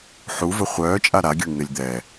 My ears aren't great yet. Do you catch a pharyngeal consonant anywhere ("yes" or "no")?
yes